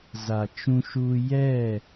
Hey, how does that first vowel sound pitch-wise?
low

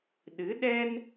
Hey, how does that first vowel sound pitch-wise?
rising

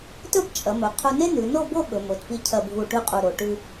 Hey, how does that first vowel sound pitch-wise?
falling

